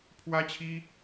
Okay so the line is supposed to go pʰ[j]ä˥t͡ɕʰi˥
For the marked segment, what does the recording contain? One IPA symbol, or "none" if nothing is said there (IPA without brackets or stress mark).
w